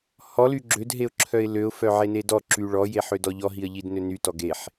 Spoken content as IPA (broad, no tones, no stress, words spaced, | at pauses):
hɔly ɡ͡ǁødɦeʊ̯ǁʰœɪ̯ løʊ̯fœʕene dɔǁy ɭɔjeħødɔ ʎɔɦiə̯ʎidnø nytɔ ɡeħ